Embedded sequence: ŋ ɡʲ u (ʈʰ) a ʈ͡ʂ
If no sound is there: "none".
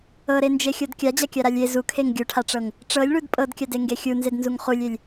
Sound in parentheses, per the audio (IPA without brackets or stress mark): ʈʰ